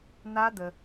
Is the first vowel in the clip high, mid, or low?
low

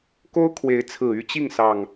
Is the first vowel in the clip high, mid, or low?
mid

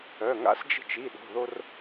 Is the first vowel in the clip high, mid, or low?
mid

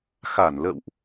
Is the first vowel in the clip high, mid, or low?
low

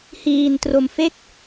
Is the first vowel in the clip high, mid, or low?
high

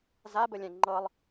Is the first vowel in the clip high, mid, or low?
low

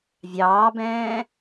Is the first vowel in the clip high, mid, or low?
low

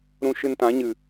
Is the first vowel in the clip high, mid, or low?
high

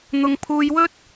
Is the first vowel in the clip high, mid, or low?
high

